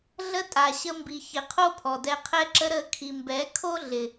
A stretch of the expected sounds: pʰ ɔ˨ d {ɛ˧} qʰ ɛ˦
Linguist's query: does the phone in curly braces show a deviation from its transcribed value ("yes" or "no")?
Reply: no